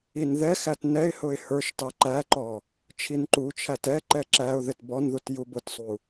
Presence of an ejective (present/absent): absent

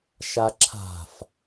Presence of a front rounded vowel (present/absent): absent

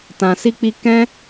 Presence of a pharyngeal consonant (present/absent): absent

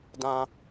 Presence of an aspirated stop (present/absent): absent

